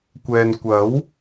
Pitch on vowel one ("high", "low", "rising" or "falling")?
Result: low